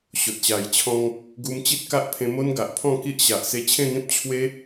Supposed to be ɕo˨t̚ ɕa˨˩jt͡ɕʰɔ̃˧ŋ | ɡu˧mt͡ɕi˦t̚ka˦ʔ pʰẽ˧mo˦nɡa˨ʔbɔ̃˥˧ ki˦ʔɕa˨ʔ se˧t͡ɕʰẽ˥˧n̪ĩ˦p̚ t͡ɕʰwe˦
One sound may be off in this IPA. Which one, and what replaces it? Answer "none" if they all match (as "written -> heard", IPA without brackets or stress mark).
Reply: b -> pʰ